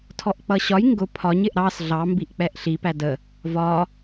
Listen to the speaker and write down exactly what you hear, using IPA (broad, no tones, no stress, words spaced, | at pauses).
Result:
tʰɔʔk͡pʌɕɒj ŋɡʊ pʰɒɲ ɪʔɾɑs ɮɑ mbiʔk͡pɛʔɬi pædə | vɒ